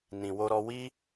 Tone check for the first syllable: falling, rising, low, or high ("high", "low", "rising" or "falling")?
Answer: low